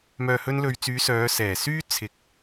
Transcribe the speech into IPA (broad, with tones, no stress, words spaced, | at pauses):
mœː˨hɵ˧nlɵ˨ɥt͡syː˨˧ sœː˨˧sɛː˨˩syː˥ t͡sʰɪ˨k̚